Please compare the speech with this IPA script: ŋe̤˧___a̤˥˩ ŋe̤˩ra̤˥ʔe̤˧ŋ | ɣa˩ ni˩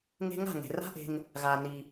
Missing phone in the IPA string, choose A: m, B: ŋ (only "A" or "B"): B